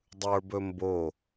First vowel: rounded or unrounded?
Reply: unrounded